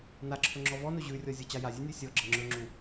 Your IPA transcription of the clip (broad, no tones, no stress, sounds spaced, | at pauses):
n a ǁʰ ɵ ŋ͡ǁ ɔ v ɔ n ɵ ʑ ʉ rʲ ɔ zʲ ɔ t͡ɕ a j a zʲ ʉ nʲ u sʲ ɔ ɡ͡ǁ ə ŋ͡ǁ ɵ ŋ͡ǁ u